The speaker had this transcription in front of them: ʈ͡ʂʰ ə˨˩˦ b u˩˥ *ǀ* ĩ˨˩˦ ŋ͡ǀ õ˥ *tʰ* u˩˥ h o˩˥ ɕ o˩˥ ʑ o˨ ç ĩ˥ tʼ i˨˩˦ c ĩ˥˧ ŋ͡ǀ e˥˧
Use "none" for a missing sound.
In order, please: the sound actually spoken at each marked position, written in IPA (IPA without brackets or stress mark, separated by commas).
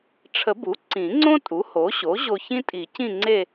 ǀ, tʼ